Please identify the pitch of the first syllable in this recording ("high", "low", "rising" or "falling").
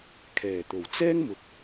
low